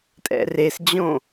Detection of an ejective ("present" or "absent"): present